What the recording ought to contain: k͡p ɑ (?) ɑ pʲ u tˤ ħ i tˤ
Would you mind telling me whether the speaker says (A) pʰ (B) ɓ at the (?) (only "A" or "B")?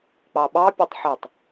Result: B